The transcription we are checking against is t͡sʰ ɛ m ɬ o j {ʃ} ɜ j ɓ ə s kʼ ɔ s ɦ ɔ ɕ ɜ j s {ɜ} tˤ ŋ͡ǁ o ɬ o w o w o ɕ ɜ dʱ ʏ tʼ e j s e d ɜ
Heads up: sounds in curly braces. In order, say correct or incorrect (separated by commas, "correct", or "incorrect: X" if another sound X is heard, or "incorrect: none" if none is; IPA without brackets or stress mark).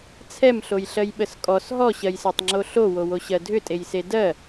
incorrect: ɬ, correct